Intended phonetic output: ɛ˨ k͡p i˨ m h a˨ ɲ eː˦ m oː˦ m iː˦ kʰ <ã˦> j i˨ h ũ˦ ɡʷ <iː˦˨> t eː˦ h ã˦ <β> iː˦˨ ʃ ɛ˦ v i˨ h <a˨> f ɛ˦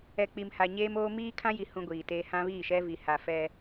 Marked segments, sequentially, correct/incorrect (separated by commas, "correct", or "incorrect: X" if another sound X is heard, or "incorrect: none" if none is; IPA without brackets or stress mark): correct, incorrect: iː˨, correct, correct